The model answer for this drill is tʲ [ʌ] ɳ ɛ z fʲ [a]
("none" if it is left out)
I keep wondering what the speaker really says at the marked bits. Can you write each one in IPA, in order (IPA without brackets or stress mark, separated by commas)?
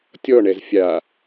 ɔ, a